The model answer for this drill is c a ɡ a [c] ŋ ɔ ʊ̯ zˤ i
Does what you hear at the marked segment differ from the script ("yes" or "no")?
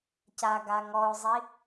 yes